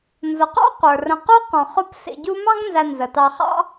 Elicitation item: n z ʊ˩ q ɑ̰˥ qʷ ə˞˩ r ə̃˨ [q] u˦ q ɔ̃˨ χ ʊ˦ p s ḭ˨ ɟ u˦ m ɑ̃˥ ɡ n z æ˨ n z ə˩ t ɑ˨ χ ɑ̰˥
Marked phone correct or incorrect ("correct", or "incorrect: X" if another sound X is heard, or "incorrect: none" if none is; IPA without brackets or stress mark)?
correct